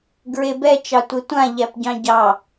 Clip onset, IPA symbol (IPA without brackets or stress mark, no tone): ɡ